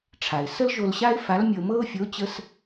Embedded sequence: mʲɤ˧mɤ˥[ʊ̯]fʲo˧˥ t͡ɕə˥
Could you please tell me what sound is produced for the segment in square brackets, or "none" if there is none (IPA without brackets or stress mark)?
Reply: ʊ̯